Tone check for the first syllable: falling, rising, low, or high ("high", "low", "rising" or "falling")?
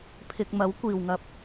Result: low